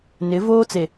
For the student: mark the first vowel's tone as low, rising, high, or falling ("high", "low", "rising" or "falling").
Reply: rising